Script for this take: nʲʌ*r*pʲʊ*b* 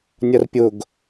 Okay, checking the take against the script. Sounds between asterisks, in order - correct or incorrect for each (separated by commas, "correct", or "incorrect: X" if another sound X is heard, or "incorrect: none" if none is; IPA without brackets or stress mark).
correct, incorrect: ɡ